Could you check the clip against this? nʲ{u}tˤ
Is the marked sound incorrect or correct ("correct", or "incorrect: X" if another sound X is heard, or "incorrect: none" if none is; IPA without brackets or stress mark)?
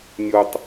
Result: incorrect: o